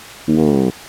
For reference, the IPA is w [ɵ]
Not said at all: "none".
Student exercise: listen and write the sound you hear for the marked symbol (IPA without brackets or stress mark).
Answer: o